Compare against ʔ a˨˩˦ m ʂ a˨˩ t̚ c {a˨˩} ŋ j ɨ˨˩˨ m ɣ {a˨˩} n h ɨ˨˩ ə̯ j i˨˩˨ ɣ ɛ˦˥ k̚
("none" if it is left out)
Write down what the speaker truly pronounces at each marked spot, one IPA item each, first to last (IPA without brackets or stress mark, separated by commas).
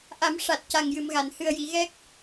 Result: a˨˩, a˨˩˨